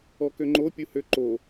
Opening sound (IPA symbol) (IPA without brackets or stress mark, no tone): ɔ